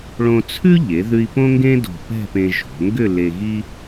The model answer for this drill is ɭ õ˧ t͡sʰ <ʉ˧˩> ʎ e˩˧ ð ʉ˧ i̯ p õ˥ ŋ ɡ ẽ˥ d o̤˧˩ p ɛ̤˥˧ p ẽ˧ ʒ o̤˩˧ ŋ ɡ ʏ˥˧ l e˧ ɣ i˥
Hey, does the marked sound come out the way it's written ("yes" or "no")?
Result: no